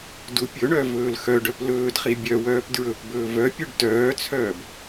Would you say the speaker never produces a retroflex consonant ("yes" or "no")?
no